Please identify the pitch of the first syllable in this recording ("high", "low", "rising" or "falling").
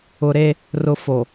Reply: low